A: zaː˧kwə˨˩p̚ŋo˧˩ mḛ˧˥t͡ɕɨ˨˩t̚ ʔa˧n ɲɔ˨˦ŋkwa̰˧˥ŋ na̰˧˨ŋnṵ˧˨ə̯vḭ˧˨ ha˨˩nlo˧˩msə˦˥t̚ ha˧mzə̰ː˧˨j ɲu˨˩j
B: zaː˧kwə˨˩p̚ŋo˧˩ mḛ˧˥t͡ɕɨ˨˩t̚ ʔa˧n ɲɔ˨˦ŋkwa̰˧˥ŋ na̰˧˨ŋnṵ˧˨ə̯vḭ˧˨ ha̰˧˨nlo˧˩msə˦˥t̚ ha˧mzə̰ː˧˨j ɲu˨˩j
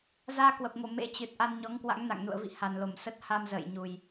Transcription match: A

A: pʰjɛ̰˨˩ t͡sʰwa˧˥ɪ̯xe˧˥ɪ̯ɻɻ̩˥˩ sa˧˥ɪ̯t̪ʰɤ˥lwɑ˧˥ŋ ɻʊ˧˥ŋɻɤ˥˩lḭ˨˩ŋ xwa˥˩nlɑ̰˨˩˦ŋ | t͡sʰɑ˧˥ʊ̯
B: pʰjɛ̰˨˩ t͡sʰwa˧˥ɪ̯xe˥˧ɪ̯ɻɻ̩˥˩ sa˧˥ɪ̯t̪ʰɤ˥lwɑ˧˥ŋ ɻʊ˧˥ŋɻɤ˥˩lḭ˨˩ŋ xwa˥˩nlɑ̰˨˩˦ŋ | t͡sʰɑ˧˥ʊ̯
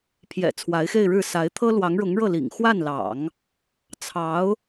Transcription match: B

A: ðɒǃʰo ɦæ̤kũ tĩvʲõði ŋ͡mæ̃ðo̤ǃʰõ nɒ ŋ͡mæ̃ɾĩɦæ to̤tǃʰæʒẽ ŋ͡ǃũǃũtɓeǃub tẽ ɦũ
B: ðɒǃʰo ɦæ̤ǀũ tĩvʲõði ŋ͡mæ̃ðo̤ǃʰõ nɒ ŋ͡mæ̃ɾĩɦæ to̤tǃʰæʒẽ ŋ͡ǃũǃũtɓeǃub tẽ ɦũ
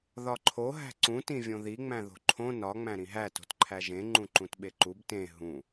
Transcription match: B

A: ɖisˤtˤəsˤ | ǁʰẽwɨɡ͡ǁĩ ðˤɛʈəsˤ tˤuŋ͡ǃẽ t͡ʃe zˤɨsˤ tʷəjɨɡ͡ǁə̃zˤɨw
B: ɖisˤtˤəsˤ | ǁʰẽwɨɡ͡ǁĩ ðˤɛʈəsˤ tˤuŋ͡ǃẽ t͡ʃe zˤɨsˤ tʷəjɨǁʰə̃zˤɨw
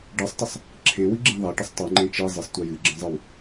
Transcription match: A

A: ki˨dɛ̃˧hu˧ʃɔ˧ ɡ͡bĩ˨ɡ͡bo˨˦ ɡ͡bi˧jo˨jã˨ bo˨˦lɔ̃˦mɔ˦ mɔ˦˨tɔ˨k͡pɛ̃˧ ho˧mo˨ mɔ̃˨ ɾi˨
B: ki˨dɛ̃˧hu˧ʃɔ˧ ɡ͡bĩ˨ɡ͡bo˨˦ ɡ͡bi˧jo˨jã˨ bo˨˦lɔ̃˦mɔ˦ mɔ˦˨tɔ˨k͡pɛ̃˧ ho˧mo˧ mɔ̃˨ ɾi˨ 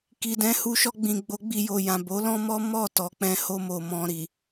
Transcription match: A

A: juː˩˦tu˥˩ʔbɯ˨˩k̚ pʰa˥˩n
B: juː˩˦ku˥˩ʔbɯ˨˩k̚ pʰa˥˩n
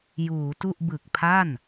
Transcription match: A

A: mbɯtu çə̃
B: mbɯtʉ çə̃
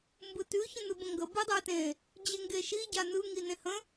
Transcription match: B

